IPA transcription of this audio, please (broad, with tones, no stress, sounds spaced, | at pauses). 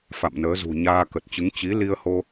f a̰˧˨ m n əː˨˦ z ṳ˨˩ ɲ aː˧ k ə˨˩ t̚ t͡ɕ ɨ˨˦ ŋ t͡ɕ i˨˦ l i˧ ə̯ h o˧